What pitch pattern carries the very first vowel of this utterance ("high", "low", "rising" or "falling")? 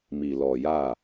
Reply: low